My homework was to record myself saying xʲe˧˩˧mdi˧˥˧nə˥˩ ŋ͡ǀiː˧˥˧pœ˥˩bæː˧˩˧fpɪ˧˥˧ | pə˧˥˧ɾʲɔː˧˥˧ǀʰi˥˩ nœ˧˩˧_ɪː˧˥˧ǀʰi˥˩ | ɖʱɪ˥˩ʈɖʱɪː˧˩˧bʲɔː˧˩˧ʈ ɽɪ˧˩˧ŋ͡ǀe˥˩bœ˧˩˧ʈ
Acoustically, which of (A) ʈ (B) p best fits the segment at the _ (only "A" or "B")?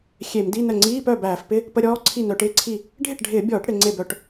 A